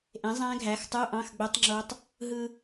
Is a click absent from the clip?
no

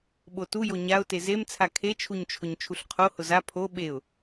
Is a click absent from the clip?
yes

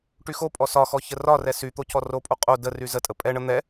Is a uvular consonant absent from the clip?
no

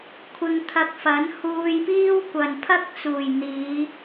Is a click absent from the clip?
yes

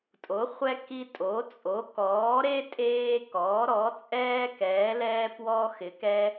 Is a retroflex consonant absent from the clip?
yes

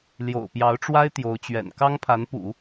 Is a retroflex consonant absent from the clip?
no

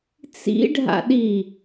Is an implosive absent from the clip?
no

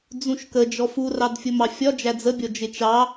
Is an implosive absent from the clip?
yes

